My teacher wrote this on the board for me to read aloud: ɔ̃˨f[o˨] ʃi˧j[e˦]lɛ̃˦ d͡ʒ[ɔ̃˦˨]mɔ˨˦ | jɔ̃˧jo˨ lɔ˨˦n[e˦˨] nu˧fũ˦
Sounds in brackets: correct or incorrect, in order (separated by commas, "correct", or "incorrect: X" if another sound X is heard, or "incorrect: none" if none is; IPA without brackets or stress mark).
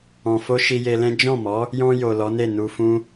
incorrect: o˧, incorrect: e˧, correct, correct